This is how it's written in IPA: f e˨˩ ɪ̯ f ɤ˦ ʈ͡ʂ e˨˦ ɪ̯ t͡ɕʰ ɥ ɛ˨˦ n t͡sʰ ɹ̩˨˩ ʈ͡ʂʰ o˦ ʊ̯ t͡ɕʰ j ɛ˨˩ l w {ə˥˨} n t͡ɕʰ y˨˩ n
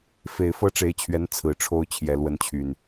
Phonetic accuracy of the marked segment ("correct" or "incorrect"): incorrect